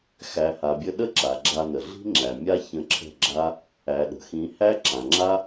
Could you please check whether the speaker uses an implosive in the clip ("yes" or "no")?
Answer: yes